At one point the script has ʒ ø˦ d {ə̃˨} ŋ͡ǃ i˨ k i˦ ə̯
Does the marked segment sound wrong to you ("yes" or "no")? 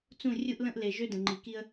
no